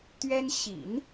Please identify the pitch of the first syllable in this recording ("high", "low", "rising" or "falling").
high